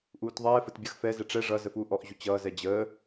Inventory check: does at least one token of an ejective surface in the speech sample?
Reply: no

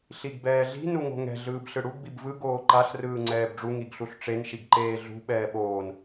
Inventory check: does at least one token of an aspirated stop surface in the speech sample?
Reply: no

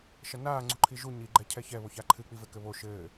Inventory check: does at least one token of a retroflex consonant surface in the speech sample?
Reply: no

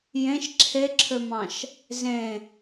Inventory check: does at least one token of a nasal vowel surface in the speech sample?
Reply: yes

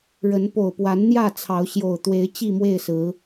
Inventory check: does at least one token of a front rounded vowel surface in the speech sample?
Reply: no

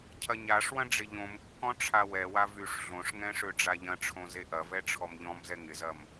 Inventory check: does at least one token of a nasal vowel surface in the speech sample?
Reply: yes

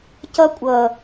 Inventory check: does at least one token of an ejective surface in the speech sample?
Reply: yes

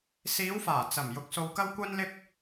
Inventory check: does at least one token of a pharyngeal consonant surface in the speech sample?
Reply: no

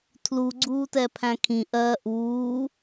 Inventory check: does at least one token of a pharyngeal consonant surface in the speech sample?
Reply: no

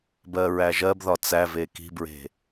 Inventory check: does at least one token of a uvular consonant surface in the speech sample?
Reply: no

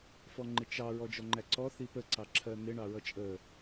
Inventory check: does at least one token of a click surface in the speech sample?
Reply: yes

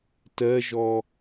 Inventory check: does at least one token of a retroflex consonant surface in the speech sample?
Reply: no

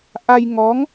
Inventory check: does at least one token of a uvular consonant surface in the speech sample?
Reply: no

